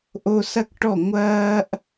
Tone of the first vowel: high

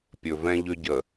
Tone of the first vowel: low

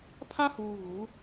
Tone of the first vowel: high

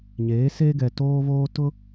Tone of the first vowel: rising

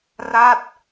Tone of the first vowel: falling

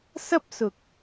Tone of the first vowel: high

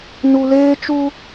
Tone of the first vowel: low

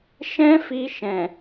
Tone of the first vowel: high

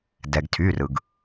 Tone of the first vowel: low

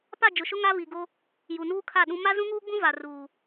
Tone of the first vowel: falling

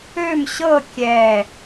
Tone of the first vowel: falling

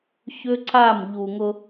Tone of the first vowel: high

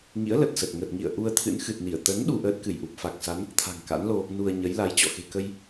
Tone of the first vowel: rising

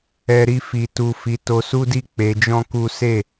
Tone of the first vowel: low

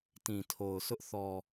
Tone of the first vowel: low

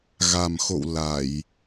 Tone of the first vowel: low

